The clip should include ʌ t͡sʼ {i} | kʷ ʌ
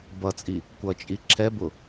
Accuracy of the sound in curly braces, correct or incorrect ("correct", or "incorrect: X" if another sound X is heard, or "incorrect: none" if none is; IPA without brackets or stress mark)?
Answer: correct